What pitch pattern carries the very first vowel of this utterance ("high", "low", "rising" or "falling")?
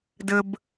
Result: high